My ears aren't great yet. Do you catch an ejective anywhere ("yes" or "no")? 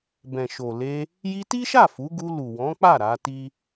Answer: no